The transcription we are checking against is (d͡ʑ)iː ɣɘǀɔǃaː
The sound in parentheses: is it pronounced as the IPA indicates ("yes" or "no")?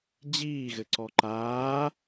yes